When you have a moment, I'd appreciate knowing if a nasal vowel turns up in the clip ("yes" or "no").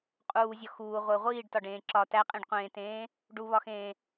yes